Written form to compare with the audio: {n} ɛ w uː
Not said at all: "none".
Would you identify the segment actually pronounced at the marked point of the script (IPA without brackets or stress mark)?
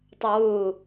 tˤ